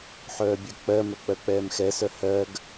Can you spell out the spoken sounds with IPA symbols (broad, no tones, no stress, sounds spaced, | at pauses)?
ħ œː bʲ œ k͡p ɜ m œ k͡p ɜ k͡p ɛː m x ɛ s œ h ɜ ɡ